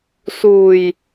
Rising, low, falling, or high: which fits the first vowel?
low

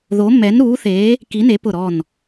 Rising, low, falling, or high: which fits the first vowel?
rising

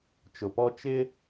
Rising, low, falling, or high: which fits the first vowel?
low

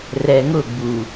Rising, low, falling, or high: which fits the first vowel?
low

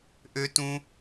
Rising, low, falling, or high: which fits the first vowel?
high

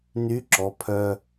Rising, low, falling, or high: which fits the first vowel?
rising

